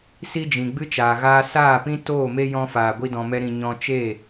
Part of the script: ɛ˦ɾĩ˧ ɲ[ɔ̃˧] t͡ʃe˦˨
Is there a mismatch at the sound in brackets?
no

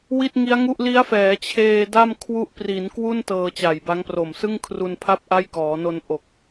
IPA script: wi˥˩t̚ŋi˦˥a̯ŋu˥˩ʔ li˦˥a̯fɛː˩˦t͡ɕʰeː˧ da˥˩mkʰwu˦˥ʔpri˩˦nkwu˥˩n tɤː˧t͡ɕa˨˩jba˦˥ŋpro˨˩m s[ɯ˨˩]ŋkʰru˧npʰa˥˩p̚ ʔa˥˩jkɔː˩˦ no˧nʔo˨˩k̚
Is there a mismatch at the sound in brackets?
yes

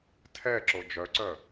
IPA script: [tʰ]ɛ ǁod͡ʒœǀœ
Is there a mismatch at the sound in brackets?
no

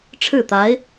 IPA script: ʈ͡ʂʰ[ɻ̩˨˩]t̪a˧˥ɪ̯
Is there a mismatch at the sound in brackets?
yes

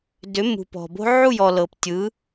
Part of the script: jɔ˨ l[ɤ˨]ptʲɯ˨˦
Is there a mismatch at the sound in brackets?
no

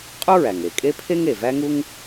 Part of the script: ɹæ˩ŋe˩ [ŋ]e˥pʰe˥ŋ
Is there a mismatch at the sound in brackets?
yes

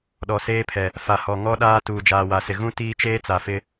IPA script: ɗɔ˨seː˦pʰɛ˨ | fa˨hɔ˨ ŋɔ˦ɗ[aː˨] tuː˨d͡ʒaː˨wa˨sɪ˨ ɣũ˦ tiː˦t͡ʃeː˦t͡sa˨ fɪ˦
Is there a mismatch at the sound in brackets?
yes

